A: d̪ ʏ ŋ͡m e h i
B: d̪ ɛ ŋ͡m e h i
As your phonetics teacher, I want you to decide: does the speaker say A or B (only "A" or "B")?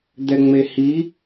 B